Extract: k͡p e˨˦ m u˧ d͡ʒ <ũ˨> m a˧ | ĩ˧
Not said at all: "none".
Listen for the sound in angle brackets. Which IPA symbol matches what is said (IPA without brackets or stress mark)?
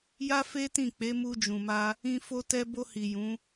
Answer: ũ˨